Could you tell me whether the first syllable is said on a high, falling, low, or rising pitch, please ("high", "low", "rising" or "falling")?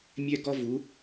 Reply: high